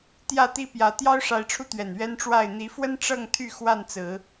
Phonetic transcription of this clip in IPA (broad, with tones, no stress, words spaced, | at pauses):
t̪jä˥˨t̪i˦pjä˨˦ t̪jɑ˦ʊ̯ʂa˨˦ɪ̯ʈ͡ʂʰu˧t̪ɥɛ˨˩n ɥɛ˦nʈ͡ʂwa˥˨ɪ̯ n̪i˨˦fwə˦n ʈ͡ʂɤ˥˨ŋt̪ʰy˥˨ xwa˥˨nt͡sɹ̩˨˦